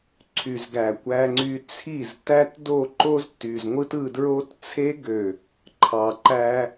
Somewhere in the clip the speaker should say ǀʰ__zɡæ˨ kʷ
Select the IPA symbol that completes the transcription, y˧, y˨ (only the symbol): y˨